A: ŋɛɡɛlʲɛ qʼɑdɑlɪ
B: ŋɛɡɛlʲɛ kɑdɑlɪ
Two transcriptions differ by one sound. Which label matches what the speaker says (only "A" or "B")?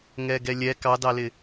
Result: B